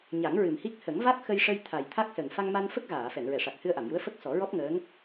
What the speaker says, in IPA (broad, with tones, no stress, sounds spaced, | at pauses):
ɲ a˨˩˦ ŋ ɹ ɨ˨˩ m h i˦˥ k̚ h ə˨˩˦ ŋ v a˦˥ k̚ x ə˧ j ʂ ə˧ j t̪ʰ a˨˩ j t̪ʰ a˦˥ k̚ s ə˨˩ ŋ f a˧ ŋ m a˧ n f ə˦˥ k̚ ɣ aː˨˩˨ f ɛ˨˩˨ n ɹ ɛ˨˩˨ ʂ a˨˩ k̚ h ɨ˧ ə̯ ʔ a˨˩˨ m j u˧˥ ə̯ f ə˦˥ k̚ s ɔ˨˩˦ ɹ ɔ˦˥ p̚ ŋ əː˧˥ ŋ